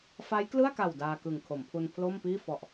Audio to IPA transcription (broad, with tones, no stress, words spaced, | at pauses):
fa˦˥jklɯ˥˩a̯ka˨˩w daː˧kɯ˨˩ŋ kʰo˩˦mpʰu˧npʰlo˥˩mpiː˥˩ fɔ˨˩ʔ